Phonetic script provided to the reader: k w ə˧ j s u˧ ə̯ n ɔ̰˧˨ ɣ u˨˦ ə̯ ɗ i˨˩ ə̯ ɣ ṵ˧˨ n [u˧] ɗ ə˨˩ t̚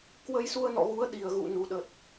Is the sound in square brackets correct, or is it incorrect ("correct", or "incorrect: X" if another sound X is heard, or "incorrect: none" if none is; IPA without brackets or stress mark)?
incorrect: u˨˩